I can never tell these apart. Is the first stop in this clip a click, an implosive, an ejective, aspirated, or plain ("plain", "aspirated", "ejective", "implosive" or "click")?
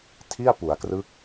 aspirated